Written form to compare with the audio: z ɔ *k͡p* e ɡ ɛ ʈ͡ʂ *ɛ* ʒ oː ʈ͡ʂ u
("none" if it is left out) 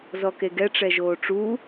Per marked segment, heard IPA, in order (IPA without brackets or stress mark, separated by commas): k, ɛ